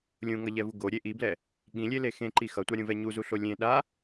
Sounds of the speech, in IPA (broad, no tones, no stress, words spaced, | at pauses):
lʲũŋʌʎɛvu ɡoɾʲe ʔiblɛ | ɠĩlʲele xẽǃi xʌtʷaɾʲũvɛ ɲuzuɬo lʲẽ ɗa